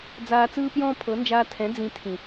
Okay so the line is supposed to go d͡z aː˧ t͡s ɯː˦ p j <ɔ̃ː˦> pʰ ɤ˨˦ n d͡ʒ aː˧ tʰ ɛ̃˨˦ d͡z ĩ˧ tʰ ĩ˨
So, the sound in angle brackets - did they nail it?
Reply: yes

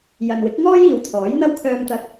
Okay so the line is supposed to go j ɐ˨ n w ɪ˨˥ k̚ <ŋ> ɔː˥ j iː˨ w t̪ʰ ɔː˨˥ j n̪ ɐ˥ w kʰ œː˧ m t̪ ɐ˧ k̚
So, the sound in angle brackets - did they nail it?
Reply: yes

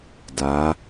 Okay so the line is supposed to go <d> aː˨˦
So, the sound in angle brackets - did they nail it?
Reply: yes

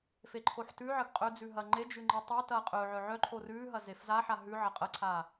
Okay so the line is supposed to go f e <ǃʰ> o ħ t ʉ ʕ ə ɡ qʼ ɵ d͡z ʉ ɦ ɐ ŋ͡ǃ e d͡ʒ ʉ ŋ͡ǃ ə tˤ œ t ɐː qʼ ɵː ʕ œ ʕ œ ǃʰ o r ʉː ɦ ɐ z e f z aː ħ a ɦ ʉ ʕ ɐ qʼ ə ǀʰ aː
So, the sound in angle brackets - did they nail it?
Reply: yes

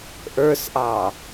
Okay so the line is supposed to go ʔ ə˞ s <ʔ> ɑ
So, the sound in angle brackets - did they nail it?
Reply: yes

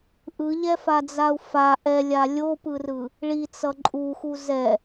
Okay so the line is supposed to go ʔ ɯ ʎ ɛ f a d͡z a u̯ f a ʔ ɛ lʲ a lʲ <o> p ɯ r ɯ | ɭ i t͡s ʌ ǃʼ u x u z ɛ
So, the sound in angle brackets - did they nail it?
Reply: yes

